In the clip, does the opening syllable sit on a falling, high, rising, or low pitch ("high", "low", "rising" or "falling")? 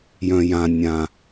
low